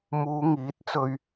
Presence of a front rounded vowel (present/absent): absent